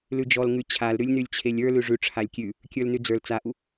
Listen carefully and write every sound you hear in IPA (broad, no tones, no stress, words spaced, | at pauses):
lʉd͡ʒɔlŋʉ t͡ɕʰalɾʉlʲ nʉlʲt͡ɕʰelʲə˞lʉ ʐʉ ʈ͡ʂʰalʲkʲʉ | kʲə˞lnʉd͡zə˞l t͡saʔu